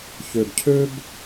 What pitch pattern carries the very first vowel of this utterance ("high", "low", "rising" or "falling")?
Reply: low